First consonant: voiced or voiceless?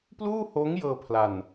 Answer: voiceless